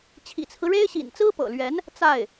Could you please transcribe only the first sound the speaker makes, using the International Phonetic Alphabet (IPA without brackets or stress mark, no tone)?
t͡ɕʰ